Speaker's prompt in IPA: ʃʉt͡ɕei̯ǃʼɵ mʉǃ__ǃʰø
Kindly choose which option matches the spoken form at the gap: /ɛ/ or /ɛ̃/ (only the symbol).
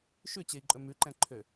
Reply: ɛ̃